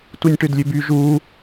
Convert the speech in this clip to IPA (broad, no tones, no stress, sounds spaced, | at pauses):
t u nʲ ʈ ø d lʲ ø b y ʒ u